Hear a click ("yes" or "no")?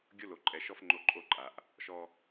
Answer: yes